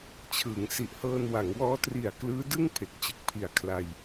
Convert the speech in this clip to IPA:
t͡ɕʰɯː˩˦ŋsi˨˩ʔhɤː˧n wa˩˦ŋwɔː˦˥ tri˨˩a̯ klɯː˦˥dɯ˥˩ŋ pʰe˨˩k̚t͡ɕɯ˨˩k̚pʰi˨˩a̯ kʰla˧j

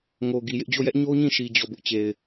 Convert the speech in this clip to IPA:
ŋo˨ ɡi˨jɪ˦ʔ d͡ʑo˦˨jɛ˦ʔ ɲo˦ɲĩ˦˨ʃi˨ d͡ʑɔ˦˨bʊ˦ʔ t͡ɕe˨ɪ̯

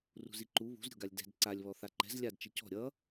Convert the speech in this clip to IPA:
rṳziǃu βṳzɾʲo̤ɡalʲ dɛ̤d ǀalʲβɔ θaǃɛ̤z lʲadt͡ʃi cɔ̤ ɾʲʌ

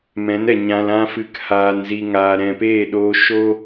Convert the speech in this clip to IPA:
mɛ̃˨˦nɛ˨ ɲã˧lã˦ fɨ˨k haː˨nzi˨ ŋaː˨ɾɛ̃˨peː˦˨ɗoː˧ ʃo˦

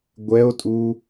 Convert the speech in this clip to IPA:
ɡʷɛo̯tʼu

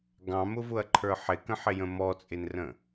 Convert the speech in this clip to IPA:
ɡɑ̃mʊvʊɐ̯ǃʰə˞ ħɪkə̃ħɪjə̃ mɔt͡sʼɪnrə̃

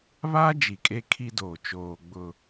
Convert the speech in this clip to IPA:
βa˦ d͡ʒi˨kʼe˦kʰi˦doː˨ t͡ʃoː˨ɡ͡bʊ˨

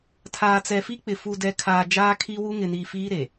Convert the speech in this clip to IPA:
tʰaː˨t͡sɛ˨fi˦k͡pɪ˨ fu˨dɛ˨ kʰaː˨ d͡ʒaː˦kʰi˦ wu˦ŋɪ˨niː˨ fiː˦ ɾe˨

